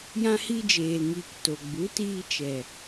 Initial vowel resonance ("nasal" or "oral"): nasal